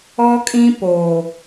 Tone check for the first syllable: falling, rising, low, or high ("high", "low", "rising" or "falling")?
high